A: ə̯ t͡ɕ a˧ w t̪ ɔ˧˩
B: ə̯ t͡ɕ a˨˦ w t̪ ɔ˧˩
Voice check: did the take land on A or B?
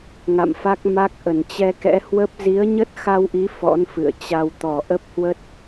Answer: A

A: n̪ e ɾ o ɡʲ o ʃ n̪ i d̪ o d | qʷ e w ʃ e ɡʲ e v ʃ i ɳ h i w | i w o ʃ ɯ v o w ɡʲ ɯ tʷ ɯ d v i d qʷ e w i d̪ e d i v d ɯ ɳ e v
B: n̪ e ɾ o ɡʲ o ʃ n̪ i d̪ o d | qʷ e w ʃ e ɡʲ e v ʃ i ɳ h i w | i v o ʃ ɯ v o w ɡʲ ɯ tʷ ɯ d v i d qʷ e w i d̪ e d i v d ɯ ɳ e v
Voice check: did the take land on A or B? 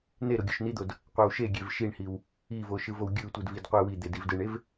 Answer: B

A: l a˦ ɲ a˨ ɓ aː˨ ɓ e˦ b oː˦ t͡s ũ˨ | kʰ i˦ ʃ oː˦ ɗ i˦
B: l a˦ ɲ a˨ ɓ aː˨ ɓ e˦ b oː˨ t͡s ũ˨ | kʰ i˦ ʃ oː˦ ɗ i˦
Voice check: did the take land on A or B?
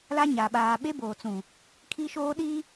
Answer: B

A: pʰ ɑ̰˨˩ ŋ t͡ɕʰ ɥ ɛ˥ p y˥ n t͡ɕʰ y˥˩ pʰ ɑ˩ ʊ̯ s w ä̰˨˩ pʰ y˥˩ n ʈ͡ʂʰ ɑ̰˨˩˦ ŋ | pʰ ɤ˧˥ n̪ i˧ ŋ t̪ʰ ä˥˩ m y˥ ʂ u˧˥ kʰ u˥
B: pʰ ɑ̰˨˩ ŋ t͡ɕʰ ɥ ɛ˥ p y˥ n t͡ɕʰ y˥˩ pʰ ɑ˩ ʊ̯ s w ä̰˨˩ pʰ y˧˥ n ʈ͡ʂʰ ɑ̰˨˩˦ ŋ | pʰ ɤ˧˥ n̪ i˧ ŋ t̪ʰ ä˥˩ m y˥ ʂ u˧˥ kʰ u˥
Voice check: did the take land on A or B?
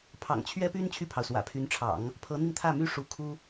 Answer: B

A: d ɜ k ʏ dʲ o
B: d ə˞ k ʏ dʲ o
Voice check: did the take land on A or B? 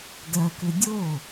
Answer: A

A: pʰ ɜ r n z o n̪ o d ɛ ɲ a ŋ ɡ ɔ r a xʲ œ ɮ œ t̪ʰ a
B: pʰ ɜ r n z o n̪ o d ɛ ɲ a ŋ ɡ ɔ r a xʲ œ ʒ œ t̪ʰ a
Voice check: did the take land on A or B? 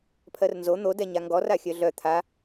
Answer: A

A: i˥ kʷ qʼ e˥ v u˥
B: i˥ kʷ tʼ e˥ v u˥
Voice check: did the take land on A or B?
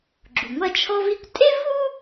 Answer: B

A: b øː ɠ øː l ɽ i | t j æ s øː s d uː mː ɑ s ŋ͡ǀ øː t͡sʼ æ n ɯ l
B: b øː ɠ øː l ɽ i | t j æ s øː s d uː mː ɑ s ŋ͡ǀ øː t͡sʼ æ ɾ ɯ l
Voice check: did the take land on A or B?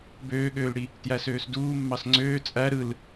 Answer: B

